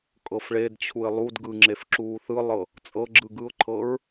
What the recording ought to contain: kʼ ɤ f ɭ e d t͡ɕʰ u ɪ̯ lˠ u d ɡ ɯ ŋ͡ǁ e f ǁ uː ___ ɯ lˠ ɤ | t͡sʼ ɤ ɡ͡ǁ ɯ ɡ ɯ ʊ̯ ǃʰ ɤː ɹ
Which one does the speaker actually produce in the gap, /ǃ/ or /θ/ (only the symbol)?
θ